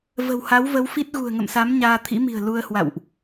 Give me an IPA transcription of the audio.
və̤˨˩wha˨˦wvə˨˦wfi˦˥t̚ ɣṳ˨˩ə̯ŋə̰˧˨msa˨˦m ɲaː˧t̪ʰḭ˧˥mi̤˨˩ə̯ lu˧ə̯hwa̰˧˨wʔ

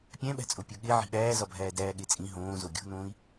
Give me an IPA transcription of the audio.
pʲæ̃ɓæ̤t͡sʼo pʲoɠe ʕi̤ɓæːzɒbʱæː dæːɠet͡sʼĩ ɦõːzo ɡʲo̤nõːi̯

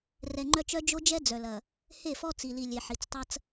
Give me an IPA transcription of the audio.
rɛ˨ŋ͡ǃœ˦t͡ʃœ˦ d͡ʒo˦d͡ʒɛ˦ d͡zœ˨lɐ˨ | he˦˨fɔ˦t͡si˨ li˨lʲe˨ ħi˨t͡stˤɐ˦t͡s

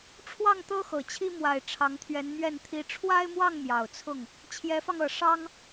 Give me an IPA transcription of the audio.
ʈ͡ʂʰwɑ˥˩ŋt̪ɤ˥ xɤ˨˩t͡ɕʰi˥ mwa˨˩ɪ̯ ʈ͡ʂʰɑ˧˥ŋt̪ʰɥɛ˧˥nmɥɛ˥˩n t̪ʰi˧˥ ʈ͡ʂʰwa˥ɪ̯mwɑ˥˩ŋ mjɑ˨˩ʊ̯t͡sʰʊ˥˩ŋ | t͡ɕʰjɛ˧˥fɑ˧ŋɤ˨˩ ʂɑ˥ŋ

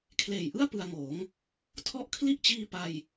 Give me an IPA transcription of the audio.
kʰleː˨˩jʔɯ˥˩a̯ pɯ˧a̯ŋoː˩˦ŋ | tʰɔ˦˥ʔkʰli˥˩ʔt͡ɕiː˧ pa˧j

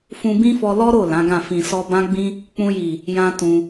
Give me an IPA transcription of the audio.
fũ˧bĩ˦fɔ˧ lɔ˦ɾo˦˨ lã˨˦ɡã˦˨ fĩ˨sɔ˧bã˦ ɡ͡bĩ˦ | k͡pũ˧ji˨ | jã˦tũ˧

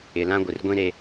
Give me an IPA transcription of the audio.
ɪ˨lã˦ ɡʷɪ˨r ɡʷĩ˦ɾe˦

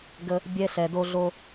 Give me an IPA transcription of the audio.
ɡə˧ | bʲɛ˧ɬɛ˨ do˧ɮo˧

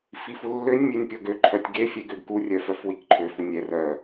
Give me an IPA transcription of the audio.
fifulːønʲ mʲønʲpʲɔɡø ǃʰœtʲɡe fʲɛɡøɡku rʲœfœfwikǃʰø funʲɛr œ

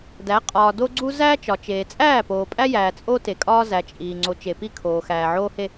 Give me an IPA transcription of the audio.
dæ˨˦ qʼɒː˨do˦ɡ͡ǀu˦ zæ˦ t͡ʃɒ˨t͡ʃeː˨ t͡sʼæː˦˨poː˨pʼæ˦jæː˨ t͡sʼo˦te˨kʼɒː˦ zæ˨t͡ʃʼiː˨ ŋ͡ǀo˨t͡ʃe˨pi˦ kʰoː˨xæː˨ʕoː˦he˦

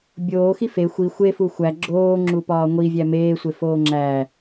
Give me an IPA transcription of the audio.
bʲoːxi fe xʷi xʷefu xʷæ ɡ͡ǁoːŋ͡ǁupɒː ŋʷivʲæ meːsʷefoː ŋ͡ǁæ

